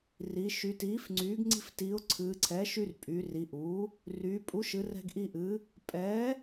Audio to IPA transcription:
ri˩˧ ʃy˩˧tiː˩˥fŋ͡ǀyː˩˥ɡ ŋ͡ǀi̤˧ftiː˩˧ʊ̯ ǀʰɨː˩˧ǀʰɛː˩˥ʃ y˧r pʼy˩˧ri˩˧ʔu˩˥ | ryː˩˧ pʼu˩˥ʃɨ˩˧ rɛ̤˧ɡʔi˧ ʔɨ˩˧ | pʼɛː˩˥

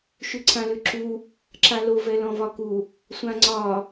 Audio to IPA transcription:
ʃʉǀʰãlʉǁu | ǁalo vɛlɔ̃vɒku | sʷãŋ͡ǀɒ

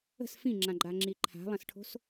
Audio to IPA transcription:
ə̤s fĩŋ͡ǁãɡ͡ǃaŋ͡ǁi ǃʰa̤lˠɐ̃sʈʰo̤s

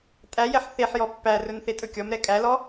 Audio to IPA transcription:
tʼæjɛħ θeħ jɔpːærɵn θetʼɵkʲɔmɾɛ kʼælɔ

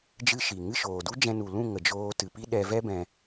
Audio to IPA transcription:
d͡ʒɨ˦ʃi˨ ŋɨ˦˨ʃoː˨du˦d͡ʒɛ̃˧ nu˨lũ˦˨ ŋə˨d͡ʒoː˧tɨ˨ pi˦ɗɛ˧vɛ˦bɛ̃˧

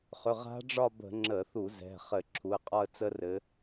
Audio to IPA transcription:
χʏ˩˧˩ʁa̤˦˥ɖ͡ʐɒ˥˧bə̤˧˩˧ ŋ͡ǁə˧˩˧θu˧˩˧ zɛ̤˩˧˩χɘ˧˩˧ ǁʰu˩˧˩ə̯qʼɒ˥˧ə̯t͡sə˦˥ rɘ˨˦

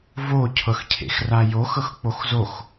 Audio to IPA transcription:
vocʰɤxcʰḛx rajoxɤx k͡poxzox

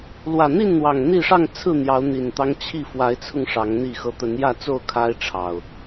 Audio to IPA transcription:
lwä˨˩n̪i˥˨nn̪wɑ˨˩ŋ n̪i˥˨ ʂɑ˥˨ŋt͡sʰɹ̩˥˨n̪jɑ˨˦ʊ̯ n̪i˨˩nt̪ɑ˦ŋ t͡ɕʰi˥˨ fwa˨˦ɪ̯t͡sʰʊ˧ŋ ʂɑ˨˦ŋn̪i˥˨xɤ˦ t̪ə˨˦njä˥˨t͡so˥˨ʊ̯ kʰa˦ɪ̯ʈ͡ʂʰɑ˨˩ʊ̯

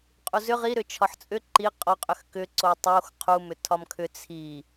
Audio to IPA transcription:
qʼuzʏ ʁi ɾʏt͡ʃʰɒħt͡sʼʏ ǃi qʼɒqʼʏx kʏ ǀotˤox qʰu mʏtʰɒmkʰʏ t͡sʰi

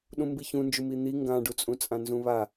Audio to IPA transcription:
ɗũmbiçũnd͡ʒum in̪i ŋɡãɖut͡sʼũ t͡sʼãnzũβa

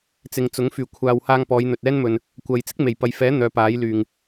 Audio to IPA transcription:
t͡sɪ˨ŋt͡sʊ˨˥ŋ fyː˨˩kʷʰaː˨whaː˧ŋ pɔː˨˧jn̪ɵ˨t̚ɛː˥nmɵ˨n | kʷɐ˨j t͡sɪ˥k̚me˨˩jpɐ˨jfɛː˨˥ n̪œː˨˧paː˨˥jlyː˨˩ŋ

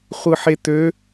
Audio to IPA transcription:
χʷɯħet̪ø

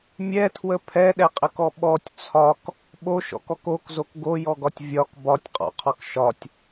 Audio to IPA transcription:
mʲɛtʰwə pʰɛɗɛqʼəkɔ ɓɔtʲ t͡sʰɒk | ɓoʃɔ̰kɔk okzok ɡojɔɡɒtʲ vʲɒk bɒtʲqʼɔ̰qʰɒk ʃɒtʲ

